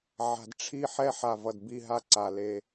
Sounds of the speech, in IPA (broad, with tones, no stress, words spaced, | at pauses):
ʕa̤˨dʈ͡ʂʰi˦ ħɛ˦ħa˨ vʌ˨dbi˦˨ɦa˦ǀa˨ le˦